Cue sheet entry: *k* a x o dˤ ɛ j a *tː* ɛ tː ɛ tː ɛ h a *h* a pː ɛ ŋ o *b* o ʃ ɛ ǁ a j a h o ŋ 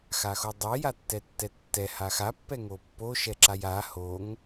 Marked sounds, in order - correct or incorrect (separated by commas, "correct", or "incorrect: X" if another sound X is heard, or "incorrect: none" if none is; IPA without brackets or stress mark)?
incorrect: x, correct, incorrect: x, incorrect: pː